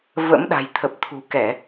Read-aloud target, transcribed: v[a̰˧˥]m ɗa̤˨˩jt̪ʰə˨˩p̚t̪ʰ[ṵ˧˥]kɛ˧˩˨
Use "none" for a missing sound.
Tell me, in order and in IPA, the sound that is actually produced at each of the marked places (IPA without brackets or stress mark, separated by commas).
ə̰˧˥, ṳ˨˩